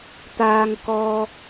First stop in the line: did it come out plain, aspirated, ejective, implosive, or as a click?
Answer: plain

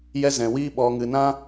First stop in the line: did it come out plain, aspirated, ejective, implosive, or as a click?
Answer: implosive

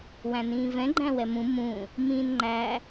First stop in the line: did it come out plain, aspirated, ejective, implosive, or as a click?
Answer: click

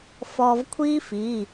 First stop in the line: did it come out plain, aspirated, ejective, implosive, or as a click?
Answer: aspirated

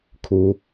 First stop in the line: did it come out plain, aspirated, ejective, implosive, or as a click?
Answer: aspirated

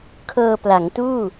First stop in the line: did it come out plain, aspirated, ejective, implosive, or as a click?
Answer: aspirated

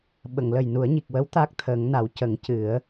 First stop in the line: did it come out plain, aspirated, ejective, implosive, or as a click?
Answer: implosive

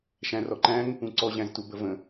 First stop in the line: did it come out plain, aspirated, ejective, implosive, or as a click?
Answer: click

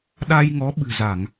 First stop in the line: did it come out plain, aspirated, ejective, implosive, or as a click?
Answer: implosive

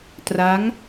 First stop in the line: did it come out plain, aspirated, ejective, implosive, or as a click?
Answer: plain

